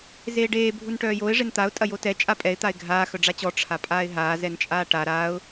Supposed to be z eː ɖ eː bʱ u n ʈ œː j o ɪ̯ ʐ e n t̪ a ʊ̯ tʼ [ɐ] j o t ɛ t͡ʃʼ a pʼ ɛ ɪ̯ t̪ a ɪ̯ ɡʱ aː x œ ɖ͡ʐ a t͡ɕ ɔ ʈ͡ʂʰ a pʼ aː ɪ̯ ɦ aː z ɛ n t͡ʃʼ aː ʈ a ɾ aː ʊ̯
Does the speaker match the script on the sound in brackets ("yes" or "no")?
yes